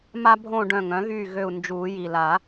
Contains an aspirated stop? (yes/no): no